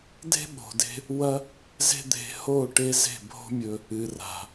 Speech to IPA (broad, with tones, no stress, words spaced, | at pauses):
de̤˦ɓo̤˨de̤˧ | wɐ˦ | ze̤˦d̪e̤˧ ho˦˨ ʈe˦ze̤˦˨ bʱo̤˦mʲɵ˧ | ɨ˨ra̤˨